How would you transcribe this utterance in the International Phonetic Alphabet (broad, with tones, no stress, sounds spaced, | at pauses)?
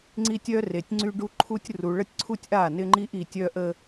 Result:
ŋ͡ǀ i˦ tʲ œ˦ r e˨ tʲ ŋ͡ǀ y˦ ɖ u˦ ǃʰ u˦ tʲ r u˨ ɭ ə˦ tʲ ǀʰ u˦ tʲ ʔ a˦˨ n ɪ˦ ŋ͡ǃ i˦ ʔ i˨ tʲ œ˦ ʔ ə˦